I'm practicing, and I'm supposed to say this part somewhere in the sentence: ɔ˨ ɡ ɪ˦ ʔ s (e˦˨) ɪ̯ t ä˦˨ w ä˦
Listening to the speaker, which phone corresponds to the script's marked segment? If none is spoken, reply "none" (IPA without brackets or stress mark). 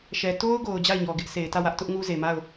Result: e˨